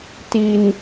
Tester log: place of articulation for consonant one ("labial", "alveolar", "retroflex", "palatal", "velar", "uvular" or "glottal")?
alveolar